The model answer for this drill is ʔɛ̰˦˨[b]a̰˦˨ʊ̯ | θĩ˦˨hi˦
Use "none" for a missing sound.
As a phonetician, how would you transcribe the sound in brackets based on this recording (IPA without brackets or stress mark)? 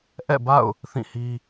b